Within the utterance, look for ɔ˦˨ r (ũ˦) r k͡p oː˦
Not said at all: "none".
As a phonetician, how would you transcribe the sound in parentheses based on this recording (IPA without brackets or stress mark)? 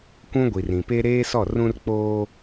ũ˦